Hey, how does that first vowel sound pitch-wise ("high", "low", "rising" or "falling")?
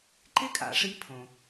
high